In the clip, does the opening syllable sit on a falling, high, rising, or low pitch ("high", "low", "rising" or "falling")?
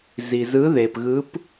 low